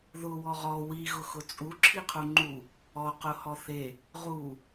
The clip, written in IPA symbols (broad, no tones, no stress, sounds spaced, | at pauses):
ð ʊ w ɔ ʁ ɔ w i ɣ ʊ x ʊ t͡sʼ u ǁʰ i qʰ u ŋ͡ǃ u | ɔ q ʊ h ɔ θ e | ʁ u